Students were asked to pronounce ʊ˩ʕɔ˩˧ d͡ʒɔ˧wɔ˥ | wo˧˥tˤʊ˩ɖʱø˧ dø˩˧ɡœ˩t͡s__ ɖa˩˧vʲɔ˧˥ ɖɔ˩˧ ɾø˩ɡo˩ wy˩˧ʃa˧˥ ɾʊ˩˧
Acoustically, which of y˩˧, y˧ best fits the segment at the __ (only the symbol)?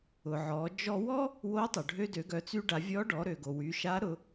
y˧